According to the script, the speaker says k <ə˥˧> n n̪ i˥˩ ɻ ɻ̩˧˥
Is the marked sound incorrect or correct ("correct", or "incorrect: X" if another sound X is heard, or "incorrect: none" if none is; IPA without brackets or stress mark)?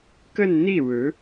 correct